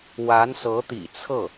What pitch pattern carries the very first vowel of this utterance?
rising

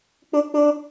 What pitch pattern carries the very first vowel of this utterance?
high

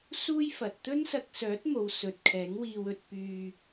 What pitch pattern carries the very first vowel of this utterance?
high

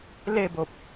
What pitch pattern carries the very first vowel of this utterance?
falling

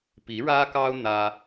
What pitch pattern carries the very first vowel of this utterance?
rising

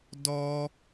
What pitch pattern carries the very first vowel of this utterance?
high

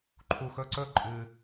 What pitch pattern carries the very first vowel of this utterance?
low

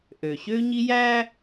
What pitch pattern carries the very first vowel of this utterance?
low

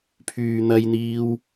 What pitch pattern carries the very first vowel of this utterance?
low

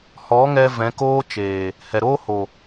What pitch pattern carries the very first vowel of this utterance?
rising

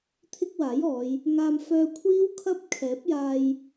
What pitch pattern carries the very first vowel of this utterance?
high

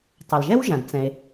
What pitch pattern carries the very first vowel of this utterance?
low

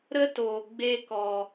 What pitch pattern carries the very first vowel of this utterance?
high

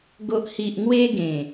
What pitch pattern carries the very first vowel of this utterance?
low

